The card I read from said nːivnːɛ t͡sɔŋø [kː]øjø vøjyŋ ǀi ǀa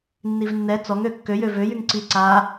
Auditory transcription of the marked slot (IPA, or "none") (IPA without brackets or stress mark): kː